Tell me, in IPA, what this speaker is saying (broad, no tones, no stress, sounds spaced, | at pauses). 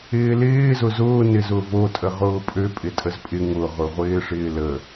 ɪː l ɪː z ʊ z ʊː n ɪ z ʊ v o tʼ ə ʁ ʊː pʼ ø pʼ ɪ tʼ ə z pʼ ɪ ŋ ʊ ʁ ʊ ʁʷ ɪː ʂ ɪː l ə